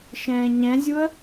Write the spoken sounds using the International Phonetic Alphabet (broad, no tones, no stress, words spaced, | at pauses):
ʃɛ̃ːɲɛ̃zʲuə̯